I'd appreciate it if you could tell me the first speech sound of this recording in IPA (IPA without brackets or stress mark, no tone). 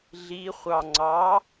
ɮ